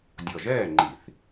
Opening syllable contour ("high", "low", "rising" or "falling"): low